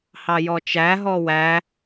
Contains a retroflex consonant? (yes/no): no